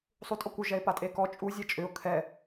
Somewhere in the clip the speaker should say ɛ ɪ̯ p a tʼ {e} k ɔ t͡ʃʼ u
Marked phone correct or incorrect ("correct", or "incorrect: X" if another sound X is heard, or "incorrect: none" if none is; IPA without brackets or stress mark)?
correct